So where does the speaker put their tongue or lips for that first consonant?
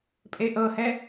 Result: lips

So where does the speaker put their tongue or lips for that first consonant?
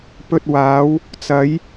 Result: lips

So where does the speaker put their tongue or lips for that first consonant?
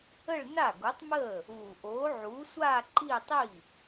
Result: retroflex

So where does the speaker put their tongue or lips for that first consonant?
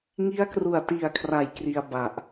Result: velum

